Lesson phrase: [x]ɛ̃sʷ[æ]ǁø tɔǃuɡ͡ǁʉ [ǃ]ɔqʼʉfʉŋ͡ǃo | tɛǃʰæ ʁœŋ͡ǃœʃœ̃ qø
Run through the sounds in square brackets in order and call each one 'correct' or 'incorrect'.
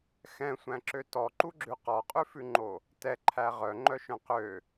correct, incorrect: æ̃, incorrect: q

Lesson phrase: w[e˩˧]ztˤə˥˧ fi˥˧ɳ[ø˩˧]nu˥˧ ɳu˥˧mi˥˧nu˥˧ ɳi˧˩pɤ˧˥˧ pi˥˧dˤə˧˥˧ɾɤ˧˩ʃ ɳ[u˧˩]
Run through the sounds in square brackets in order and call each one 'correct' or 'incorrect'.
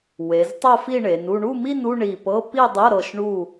correct, incorrect: e˩˧, correct

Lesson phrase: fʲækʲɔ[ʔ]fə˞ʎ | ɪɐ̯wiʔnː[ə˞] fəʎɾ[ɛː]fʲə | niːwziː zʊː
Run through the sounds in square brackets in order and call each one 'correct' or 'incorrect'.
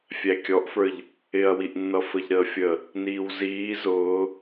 correct, incorrect: ʌ, incorrect: əː

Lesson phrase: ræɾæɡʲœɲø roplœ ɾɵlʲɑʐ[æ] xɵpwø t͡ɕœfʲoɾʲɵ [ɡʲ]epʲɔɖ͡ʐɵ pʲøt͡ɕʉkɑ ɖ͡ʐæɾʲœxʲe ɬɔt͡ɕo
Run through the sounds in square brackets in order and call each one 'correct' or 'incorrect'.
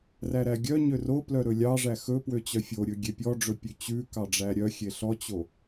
correct, correct

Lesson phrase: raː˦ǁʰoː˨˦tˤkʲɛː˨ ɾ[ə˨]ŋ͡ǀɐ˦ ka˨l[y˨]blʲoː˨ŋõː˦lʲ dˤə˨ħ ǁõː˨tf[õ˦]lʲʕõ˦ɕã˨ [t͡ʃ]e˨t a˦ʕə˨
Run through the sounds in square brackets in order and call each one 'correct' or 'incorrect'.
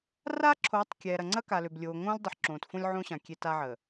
incorrect: ɐ˨, incorrect: ø˨, correct, incorrect: kʲ

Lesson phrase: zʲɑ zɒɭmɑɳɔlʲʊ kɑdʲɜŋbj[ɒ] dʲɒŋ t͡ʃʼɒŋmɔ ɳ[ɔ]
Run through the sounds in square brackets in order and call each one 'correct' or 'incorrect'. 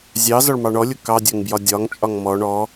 correct, correct

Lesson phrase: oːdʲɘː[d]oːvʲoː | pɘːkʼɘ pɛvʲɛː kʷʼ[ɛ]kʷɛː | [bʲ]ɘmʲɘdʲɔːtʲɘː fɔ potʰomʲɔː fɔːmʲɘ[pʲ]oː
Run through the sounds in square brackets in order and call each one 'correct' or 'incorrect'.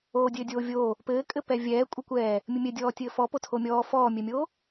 incorrect: dʲ, incorrect: ɘ, incorrect: mʲ, incorrect: mʲ

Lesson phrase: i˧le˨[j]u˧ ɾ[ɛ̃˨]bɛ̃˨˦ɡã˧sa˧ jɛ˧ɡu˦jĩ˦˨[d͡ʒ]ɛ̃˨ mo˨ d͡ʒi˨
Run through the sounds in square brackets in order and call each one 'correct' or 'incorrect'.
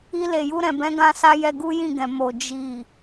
correct, correct, incorrect: ɡ

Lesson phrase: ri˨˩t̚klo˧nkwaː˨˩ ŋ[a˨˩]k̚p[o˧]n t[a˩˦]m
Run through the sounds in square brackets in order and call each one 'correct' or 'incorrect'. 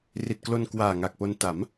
correct, correct, correct

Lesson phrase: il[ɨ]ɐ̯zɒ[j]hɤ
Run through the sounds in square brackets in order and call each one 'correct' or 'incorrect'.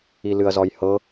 correct, correct

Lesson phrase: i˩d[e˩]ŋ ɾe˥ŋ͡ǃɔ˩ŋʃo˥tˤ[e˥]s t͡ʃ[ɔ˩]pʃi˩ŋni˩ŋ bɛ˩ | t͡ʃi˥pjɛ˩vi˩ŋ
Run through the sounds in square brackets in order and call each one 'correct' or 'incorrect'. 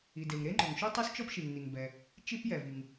correct, correct, incorrect: ɔ˥

